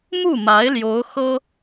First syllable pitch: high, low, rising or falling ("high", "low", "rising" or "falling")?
falling